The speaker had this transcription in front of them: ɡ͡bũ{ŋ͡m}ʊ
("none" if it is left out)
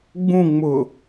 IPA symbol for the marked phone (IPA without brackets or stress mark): ŋ͡m